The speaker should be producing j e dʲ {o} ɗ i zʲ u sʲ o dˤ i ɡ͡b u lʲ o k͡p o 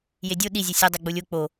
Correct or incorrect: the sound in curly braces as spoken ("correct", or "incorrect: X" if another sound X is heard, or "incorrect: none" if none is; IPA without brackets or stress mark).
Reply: correct